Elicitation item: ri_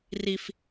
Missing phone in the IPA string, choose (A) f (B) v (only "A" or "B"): A